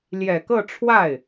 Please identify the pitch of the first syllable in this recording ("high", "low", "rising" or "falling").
low